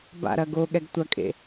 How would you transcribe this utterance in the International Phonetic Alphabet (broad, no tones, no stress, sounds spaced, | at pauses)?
b a̰ ɾ ɐ ɡ o ɠ ɛ ɡ tʷ ɐ kʼ ḛ